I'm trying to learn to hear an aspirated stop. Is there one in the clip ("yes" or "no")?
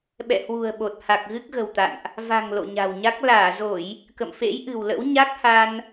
no